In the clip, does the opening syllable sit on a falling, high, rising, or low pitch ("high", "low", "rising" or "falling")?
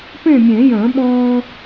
falling